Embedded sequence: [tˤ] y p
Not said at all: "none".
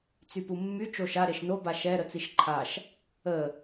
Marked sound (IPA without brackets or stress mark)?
t͡s